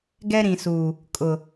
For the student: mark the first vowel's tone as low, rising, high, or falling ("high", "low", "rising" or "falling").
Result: high